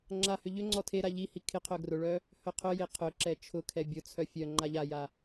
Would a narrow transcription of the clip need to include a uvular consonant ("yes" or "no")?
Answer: yes